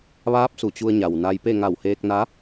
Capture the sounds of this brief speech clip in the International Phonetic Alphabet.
ʋ aː˧˥ p̚ s u˩ t͡ɕ u˧ ə̯ ɲ a˩ w n a˧ j p e˥˨ ŋ a˧˩ w h eː˧ k̚ n a˧˥

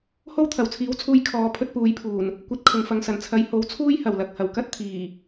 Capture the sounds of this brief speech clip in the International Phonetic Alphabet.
h o˥ w t̪ʰ ɐ˨˩ w t͡sʰ iː˨˥ w t͡sʰ uː˧ j kʰ ɔː˨˧ pʰ ɵ˧ t̚ p uː˨ j pʰ uː˨˩ n | kʷ ɐ˧ t̚ kʰ ʊ˨ ŋ f ɐ˨ ŋ s ɐ˨˩ n t͡sʰ ɐ˨˧ j h o˨˥ w t͡sʰ uː˥ j h ɐ˨˩ w l ɐ˧ k̚ h ɐ˨˩ w k ɐ˥ t̚ t̪ʰ iː˨˩

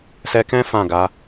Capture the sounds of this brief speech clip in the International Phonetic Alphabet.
s ɛ˧ k ɛ̃˦ f ã˦˨ ɡ a˨˦

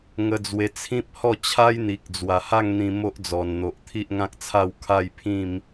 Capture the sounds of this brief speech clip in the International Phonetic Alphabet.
ŋ ə˧ d͡z w e˧ t͡sʰ ĩ˦ p̚ h ɔ˥˧ t͡ɕʰ a˦ j n̪ i˨ k̚ d͡z w a˨˩ h a˥˧ ŋ n̪ ĩ˧ m o˦ ʔ d͡z ɔ˨˩ n n̪ o˨ ʔ t̪ʰ i˦ ʔ ŋ ã˦ k̚ t͡sʰ a˥˧ w kʰ a˥˧ j pʰ ĩ˥˧ m

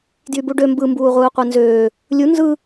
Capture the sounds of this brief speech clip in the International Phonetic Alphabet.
d j y b u ɖ ø m b ɯ m b uː ʁʷ ɯː qʷ e n z øː | lʲ u n z ɯ

